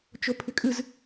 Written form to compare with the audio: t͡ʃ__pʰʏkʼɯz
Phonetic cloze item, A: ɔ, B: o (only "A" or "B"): B